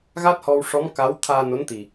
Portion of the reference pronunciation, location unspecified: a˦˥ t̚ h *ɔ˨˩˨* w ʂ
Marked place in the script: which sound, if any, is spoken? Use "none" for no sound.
ɔ˧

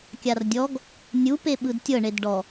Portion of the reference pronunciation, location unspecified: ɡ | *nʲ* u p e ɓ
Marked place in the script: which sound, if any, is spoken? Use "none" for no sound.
nʲ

